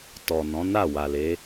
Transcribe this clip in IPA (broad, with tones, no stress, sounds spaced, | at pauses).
t ɔ˨ n ɔ̃˨˦ n a˦˨ w a˨ l e˨˦